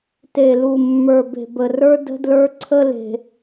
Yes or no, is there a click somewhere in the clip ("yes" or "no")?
yes